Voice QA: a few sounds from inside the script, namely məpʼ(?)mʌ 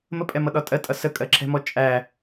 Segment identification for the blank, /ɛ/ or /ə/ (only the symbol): ɛ